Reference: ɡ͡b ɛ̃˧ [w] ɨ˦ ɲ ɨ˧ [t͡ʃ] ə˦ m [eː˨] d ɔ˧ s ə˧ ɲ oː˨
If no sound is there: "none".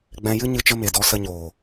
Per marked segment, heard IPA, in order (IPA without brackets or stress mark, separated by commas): j, t͡ʃ, e˨